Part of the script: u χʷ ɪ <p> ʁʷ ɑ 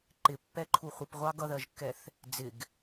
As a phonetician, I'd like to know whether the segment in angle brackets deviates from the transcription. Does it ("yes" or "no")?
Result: no